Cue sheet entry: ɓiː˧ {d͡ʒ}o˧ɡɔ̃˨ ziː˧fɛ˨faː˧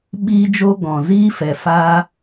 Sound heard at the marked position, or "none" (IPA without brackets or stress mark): d͡ʒ